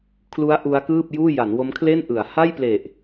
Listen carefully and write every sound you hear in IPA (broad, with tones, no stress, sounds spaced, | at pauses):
kʰ l u˦˥ a̯ ʔ u˦˥ a̯ k ɯː˥˩ p̚ j uː˥˩ j a˩˦ n w o˦˥ m kʰ l e˥˩ n ʔ ɯ˩˦ a̯ h a˥˩ j p l e˨˩ ʔ